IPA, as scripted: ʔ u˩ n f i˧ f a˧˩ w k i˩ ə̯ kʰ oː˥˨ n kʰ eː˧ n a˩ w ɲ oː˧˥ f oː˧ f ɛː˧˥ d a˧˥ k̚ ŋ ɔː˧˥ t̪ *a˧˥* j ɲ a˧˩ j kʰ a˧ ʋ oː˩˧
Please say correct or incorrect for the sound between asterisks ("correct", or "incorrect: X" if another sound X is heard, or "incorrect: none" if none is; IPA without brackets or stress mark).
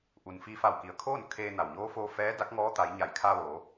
incorrect: a˩˧